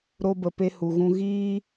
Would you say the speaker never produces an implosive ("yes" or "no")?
yes